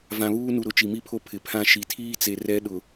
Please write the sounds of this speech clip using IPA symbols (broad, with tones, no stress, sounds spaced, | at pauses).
v ã˨ β uː˦ n u˨ ɾ ʊ˨ t͡ʃ i˨ m i˦ pʰ o˦ pʰ ɪ˨ pʰ ã˦ ʃ i˨ tʰ iː˦ t͡s e˨ r ɛ˦ ɗ ʊ˨